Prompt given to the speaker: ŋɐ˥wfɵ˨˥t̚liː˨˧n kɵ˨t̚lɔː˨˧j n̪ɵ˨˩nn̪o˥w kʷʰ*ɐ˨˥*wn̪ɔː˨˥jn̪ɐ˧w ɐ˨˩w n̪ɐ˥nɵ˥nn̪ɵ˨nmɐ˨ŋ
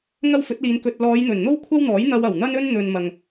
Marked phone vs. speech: incorrect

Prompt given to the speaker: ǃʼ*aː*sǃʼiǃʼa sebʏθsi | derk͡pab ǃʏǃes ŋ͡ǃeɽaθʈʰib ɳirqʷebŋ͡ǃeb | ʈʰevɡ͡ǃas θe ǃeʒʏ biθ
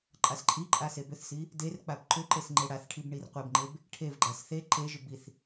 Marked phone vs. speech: incorrect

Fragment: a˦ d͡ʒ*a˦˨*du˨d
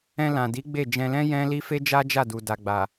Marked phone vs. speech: correct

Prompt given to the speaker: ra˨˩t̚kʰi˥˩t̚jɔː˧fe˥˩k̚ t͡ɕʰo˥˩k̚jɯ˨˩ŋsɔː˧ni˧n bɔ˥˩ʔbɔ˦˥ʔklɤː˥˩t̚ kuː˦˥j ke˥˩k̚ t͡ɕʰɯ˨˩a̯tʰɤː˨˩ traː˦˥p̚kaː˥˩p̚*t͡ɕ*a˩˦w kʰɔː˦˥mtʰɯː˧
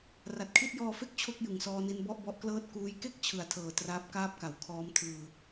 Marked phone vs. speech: incorrect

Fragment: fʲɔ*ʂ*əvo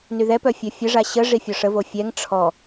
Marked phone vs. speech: correct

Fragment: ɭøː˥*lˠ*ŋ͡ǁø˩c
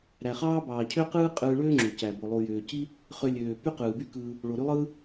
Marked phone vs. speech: incorrect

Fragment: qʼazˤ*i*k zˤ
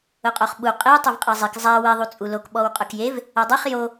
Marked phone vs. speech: correct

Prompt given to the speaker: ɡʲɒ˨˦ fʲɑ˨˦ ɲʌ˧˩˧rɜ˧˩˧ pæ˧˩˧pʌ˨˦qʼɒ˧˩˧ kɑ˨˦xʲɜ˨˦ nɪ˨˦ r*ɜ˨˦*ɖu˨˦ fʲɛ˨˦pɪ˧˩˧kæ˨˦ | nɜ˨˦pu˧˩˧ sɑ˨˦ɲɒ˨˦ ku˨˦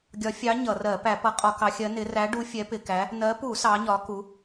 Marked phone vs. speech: incorrect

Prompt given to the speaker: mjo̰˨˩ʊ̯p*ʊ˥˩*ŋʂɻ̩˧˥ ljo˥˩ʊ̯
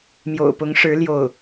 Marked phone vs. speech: incorrect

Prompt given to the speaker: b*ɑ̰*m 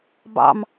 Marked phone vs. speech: correct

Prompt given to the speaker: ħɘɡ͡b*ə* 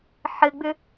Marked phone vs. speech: incorrect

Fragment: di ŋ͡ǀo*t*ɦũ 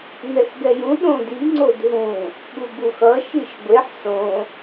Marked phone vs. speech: incorrect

